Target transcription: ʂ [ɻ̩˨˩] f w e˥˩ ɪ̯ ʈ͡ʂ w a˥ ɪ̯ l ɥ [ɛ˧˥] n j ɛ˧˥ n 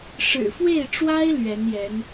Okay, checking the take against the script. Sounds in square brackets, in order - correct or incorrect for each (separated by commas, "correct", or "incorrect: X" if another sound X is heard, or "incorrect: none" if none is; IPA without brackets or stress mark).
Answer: correct, correct